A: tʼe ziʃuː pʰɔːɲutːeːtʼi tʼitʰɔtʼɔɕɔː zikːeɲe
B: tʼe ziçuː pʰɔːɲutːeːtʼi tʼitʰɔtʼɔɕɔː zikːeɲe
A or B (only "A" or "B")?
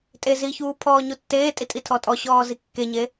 B